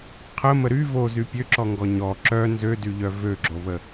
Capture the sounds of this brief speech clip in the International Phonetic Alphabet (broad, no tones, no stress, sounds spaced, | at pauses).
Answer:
qʰ ə m ə ɾ y v o z y pʲ ø ǁ ɔ ŋ ɡ ɔ ɲ ɔ ǁ œ n z ø d y ʎ œ v ø ɡ͡ǁ o β ə